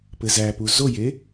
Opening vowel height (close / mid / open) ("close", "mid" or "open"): mid